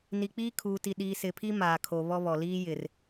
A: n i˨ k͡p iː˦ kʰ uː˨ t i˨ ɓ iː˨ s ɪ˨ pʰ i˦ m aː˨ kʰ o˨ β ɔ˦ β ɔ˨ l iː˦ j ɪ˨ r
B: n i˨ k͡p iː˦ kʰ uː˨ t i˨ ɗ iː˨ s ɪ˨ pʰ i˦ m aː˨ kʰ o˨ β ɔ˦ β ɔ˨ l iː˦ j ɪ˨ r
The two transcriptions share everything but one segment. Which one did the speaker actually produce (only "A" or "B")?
B